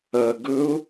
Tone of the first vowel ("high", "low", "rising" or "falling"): low